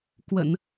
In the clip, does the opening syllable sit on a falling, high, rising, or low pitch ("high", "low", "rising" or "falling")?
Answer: low